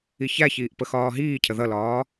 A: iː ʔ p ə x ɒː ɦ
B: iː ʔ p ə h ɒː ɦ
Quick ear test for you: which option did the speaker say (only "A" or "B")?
A